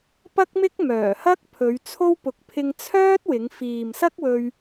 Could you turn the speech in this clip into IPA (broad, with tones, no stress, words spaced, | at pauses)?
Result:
pɐ˥k̚mɪ˥k̚ mœː˨˩hɐ˥k̚ pʰɵ˨˧ɥt͡sʰo˥w pʊ˨k̚pʰɪ˧ŋ t͡sʰœː˥t̚wɪ˨˧ŋ fiː˨msɐ˥k̚wɵ˧ɥ